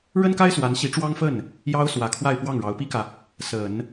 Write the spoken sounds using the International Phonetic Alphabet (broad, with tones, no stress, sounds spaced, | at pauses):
ɻ ə˥ n k a˥ ɪ̯ s w a˧˥ n ɕ i˧˥ ʈ͡ʂ w ɑ˥ ŋ f ə˥˩ n | j ɑ˥ ʊ̯ s w ä˨˩ kʰ w a˥˧ ɪ̯ p w ɑ˥˩ ŋ ɻ ɑ˧˥ ʊ̯ p i˥ k ä˨ | s ə˨˩˦ n